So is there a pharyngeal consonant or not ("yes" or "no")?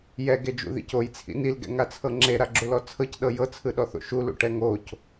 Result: no